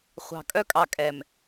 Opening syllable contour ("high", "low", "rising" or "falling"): low